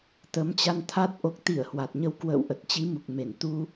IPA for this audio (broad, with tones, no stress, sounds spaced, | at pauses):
t̪ ə˨˦ m t͡ɕ a˧ n t̪ʰ a˦˥ t̚ ʔ o˨˩ k̚ t̪ i˧˩ ə̯ h w a˨˩ t̚ ɲ ə˧ w k w ə̰ː˧˨ w ʔ ə˨˩ t̚ t͡ɕ i˨˦ m u˨˩ k̚ m e˧˩ n t̪ u˧